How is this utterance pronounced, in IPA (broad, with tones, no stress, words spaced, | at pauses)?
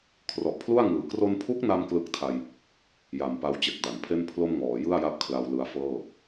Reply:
kʰrɔ˨˩ʔpʰlu˥˩a̯ŋɯː˨˩ kro˧npʰu˦˥k̚na˧m klɯ˦˥k̚tʰa˧j | ja˨˩mpa˧w t͡ɕe˨˩k̚ da˩˦npʰe˥˩n pʰlo˥˩mŋɔː˩˦ jɯ˥˩a̯ja˦˥p̚ kʰla˧wlɯ˧a̯fɤː˥˩